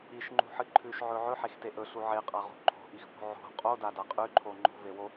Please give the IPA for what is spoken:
i ʃ ŋ͡ǃ ṳ ħ ɨ ǃʰ ʉ ʃ ʕ ɵ ʕ ɵ ħ e x t e ʔ ɵ ɬ u ʕ e qʼ a ʁ ṳ ǃʰ o̤ ʔ i x p o̤ ʕ o̤ qʼ o d a d a qʼ ʉ ǃʰ o ŋ͡ǃ o̤ v e w o

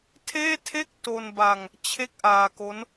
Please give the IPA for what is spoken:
tʰ eː˥˩ tʰ e˥˩ k̚ t o˧ n b a˧ ŋ | t͡ɕʰ e˥˩ k̚ ʔ aː˧ k o˦˥ n

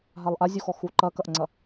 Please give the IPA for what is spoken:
ɦ a lˠ ʔ a zʲ u x ɔ x u ǃ ɐ k ɐ ʔ ŋ͡ǀ ɐ

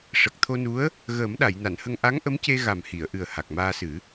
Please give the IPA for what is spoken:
ʂ ə˨˩ k̚ t̪ʰ o˧ n u˧˥ ə̯ | ɣ əː˨˩˦ m ɗ a˨˩˨ j n a˨˩˨ n h ə˧ ŋ ʔ a˧˥ ŋ ʔ ə˧˥ m c e˧ ɣ a˨˩ m h i˨˩˨ ə̯ ʔ ɨ˨˩ ə̯ h a˨˩ k̚ m aː˧ s ɨ˨˩˦

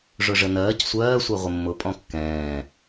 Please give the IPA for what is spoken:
ʐ ʊ ʐ ə n ɜː c sʷ ɜː sʷ ɜ ʁʷ ɪ mː ʊ pʼ ɔ̃ kː ɛ̃ː

